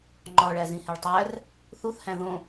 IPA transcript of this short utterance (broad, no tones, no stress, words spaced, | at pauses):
ŋ͡ǃɒɭæ zĩheɭtˤær | θuθhæ̃ ðõ